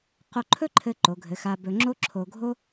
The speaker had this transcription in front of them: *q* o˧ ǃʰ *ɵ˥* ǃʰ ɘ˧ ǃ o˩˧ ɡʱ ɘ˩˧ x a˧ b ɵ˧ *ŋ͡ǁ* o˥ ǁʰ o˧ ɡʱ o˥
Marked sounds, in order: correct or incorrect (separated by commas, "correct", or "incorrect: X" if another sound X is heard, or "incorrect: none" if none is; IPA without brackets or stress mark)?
correct, correct, correct